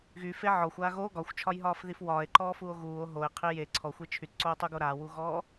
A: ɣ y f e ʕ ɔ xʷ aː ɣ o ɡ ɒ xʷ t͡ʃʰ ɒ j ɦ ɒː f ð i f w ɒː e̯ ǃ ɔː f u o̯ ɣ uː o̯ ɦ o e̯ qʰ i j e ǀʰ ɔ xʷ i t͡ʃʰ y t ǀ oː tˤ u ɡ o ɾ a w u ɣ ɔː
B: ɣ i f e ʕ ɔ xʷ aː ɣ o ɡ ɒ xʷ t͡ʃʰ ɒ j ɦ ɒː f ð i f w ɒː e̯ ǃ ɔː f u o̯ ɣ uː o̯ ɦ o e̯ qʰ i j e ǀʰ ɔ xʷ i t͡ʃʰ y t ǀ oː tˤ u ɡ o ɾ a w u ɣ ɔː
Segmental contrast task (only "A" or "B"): A